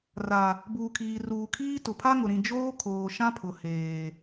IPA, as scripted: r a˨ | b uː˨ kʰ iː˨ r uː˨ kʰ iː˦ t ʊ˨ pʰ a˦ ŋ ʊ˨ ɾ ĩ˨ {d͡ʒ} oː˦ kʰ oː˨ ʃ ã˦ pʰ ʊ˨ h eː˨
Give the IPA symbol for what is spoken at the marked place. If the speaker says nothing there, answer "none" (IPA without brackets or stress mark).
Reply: d͡ʒ